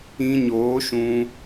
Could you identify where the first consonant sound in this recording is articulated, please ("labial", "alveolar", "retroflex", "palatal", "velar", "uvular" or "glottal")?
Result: palatal